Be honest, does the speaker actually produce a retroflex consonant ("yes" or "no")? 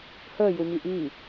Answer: no